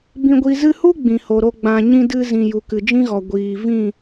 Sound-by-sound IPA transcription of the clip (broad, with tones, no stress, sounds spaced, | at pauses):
b ĩ˧ ɡʷ i˧ z ɨ˧ h u˦ ɡ͡b ĩ˨ h o˨ ɾ o˧ ɡ͡b ã˨ ɲ ĩ˧ d ɨ˧ z ĩ˨ j u˨ k ɨ˨ d͡ʒ ĩ˦ ɣ ɔ˨ ɡʷ iː˨ v ĩ˦˨